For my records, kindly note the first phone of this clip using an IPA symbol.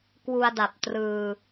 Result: k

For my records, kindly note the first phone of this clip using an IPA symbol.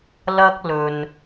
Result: l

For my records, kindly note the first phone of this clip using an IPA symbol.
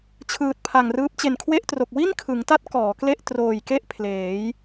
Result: t͡ɕʰ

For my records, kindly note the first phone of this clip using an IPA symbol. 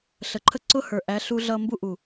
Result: ɬ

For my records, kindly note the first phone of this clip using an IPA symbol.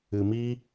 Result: ɨ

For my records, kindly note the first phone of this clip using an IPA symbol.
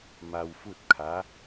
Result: m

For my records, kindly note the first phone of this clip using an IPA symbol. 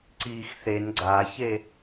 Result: ǀ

